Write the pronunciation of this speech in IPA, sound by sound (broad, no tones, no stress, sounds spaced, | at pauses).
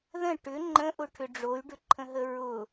ð ə̃ ʈ ʏ ŋ͡ǃ ə̃ ʔ ʊ ʈʰ ʏ ɖ͡ʐ o y̯ ɖ ʏ ǃʰ ə̃ ɦ ə ɹ ʊ